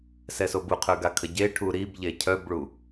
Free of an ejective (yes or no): yes